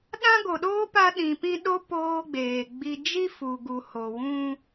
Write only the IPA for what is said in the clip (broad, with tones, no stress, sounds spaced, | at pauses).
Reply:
ɗ ã˦ ɡ o˨ ɗ oː˦ p a˦ ɗ ĩ˨ p ĩ˦ ɗ o˦ p oː˦ ɡ͡b eː˨ ɡ͡b i˦ d͡ʒ i˦ f u˨ ɡ u˨ h o˨ w ũ˦